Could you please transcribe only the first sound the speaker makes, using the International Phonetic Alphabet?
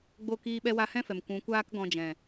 ɡ͡b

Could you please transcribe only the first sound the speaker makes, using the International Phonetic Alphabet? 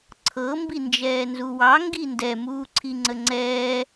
ǀʰ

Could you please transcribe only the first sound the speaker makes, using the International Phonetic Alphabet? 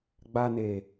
ɡ͡b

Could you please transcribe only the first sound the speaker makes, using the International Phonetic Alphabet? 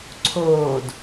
ǀʰ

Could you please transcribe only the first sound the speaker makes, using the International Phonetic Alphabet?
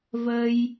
v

